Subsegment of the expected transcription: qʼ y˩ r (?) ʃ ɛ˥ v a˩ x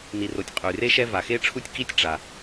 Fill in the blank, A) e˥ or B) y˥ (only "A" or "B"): A